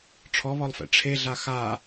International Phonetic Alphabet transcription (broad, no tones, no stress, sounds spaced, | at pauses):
ʈ͡ʂʰ ɔ β ɔ lˠ f ɛ̰ ʈ͡ʂʰ e ɮ a x a